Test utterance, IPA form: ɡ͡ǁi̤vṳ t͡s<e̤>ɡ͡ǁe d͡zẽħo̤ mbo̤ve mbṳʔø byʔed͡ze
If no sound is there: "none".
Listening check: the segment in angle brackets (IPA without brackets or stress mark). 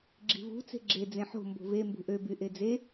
e̤